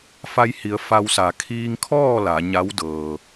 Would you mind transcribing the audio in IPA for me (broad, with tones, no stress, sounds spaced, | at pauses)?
f a˧ j h i˩˧ ə̯ f a˧ w s a˩˧ kʰ iː˧ ŋ kʰ ɔː˥˨ l a˩˧ ɲ a˧˥ w d ɤː˩